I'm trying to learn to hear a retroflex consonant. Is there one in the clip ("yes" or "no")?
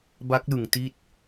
no